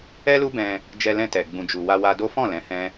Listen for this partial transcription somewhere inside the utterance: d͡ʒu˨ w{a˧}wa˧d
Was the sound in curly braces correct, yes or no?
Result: yes